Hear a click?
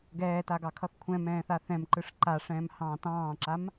yes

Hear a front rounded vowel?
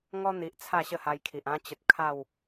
no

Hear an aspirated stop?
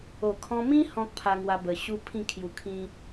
yes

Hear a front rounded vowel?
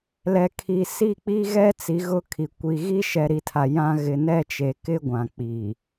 no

